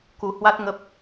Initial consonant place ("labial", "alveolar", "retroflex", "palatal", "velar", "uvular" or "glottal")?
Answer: velar